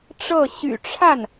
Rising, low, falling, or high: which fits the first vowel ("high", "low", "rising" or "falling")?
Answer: falling